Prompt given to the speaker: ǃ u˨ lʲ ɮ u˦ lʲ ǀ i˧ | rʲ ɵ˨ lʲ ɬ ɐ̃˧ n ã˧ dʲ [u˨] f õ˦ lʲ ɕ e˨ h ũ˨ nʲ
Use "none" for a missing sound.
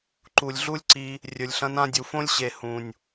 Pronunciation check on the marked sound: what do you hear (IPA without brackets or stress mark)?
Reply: u˨